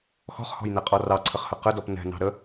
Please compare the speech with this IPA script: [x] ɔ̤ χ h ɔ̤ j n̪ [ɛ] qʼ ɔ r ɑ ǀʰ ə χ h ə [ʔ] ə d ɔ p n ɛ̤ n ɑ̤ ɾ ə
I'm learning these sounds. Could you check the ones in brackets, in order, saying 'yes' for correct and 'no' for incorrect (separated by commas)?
yes, yes, no